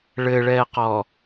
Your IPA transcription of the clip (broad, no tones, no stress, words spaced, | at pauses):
ɭɘɭɛːqɔ